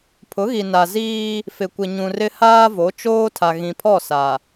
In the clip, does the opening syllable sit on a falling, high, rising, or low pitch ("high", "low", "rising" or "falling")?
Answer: rising